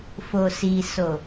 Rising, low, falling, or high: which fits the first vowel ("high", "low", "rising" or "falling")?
low